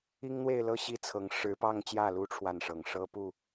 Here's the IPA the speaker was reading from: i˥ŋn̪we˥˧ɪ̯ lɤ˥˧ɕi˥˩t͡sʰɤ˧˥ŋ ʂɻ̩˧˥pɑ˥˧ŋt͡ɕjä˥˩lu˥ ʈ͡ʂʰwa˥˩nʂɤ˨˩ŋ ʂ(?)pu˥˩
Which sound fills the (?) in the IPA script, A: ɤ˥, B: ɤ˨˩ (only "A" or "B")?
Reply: A